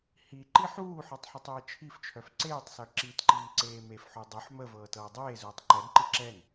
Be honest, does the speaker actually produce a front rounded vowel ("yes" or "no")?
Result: yes